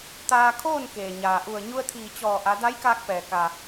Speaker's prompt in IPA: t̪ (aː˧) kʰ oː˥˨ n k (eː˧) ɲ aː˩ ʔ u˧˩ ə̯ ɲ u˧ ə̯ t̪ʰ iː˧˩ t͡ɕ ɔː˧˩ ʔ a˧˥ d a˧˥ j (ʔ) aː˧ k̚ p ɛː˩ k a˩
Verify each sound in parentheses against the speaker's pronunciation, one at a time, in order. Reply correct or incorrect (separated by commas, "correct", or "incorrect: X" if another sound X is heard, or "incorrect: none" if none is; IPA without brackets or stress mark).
correct, incorrect: eː˩, incorrect: k